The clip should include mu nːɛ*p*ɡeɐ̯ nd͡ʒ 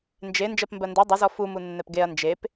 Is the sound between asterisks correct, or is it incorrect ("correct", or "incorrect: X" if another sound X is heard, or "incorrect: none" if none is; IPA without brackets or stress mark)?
correct